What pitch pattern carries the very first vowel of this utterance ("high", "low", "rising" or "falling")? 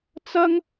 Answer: high